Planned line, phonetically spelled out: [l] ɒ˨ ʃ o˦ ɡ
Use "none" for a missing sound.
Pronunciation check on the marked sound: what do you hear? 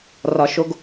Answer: r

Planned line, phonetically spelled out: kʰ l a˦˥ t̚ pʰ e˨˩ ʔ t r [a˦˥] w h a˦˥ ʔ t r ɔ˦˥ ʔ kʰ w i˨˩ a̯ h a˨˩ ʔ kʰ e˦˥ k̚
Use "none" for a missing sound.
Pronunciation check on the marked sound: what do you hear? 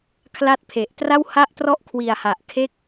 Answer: a˥˩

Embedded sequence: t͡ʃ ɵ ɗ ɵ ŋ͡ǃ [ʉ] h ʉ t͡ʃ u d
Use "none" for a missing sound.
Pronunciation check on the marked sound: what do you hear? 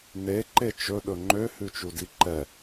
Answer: ø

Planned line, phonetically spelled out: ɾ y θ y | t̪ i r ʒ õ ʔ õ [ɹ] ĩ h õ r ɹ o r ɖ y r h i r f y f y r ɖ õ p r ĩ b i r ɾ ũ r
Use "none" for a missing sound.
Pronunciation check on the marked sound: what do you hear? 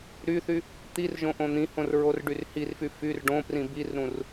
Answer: n̪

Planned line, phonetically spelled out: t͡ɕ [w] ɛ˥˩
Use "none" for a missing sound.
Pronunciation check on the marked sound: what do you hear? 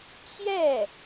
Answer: j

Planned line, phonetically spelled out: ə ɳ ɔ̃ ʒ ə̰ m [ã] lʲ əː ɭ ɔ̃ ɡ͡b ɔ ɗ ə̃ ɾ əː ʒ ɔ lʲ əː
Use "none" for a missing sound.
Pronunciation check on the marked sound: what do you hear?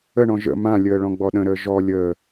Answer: ã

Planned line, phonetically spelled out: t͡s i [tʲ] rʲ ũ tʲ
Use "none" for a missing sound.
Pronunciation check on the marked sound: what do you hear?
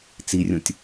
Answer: none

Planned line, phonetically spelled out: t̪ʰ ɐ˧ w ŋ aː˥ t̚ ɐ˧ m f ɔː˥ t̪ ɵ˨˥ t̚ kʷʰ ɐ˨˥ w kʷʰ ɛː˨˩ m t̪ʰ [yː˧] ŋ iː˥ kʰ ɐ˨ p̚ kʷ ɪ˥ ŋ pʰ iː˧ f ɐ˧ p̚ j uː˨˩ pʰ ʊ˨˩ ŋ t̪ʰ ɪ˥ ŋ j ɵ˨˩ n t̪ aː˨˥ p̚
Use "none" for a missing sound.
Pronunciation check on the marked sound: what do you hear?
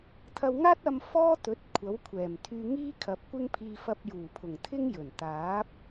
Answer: yː˧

